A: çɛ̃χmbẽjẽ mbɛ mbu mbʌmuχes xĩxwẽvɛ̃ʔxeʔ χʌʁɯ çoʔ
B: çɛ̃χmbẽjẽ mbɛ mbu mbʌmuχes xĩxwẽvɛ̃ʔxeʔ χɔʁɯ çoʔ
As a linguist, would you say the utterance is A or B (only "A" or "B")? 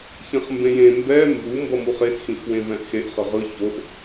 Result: A